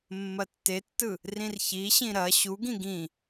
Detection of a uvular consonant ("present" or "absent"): absent